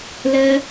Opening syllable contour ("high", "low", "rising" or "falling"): high